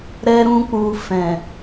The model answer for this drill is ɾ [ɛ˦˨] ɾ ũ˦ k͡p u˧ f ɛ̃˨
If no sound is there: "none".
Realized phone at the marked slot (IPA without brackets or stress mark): ɛ˦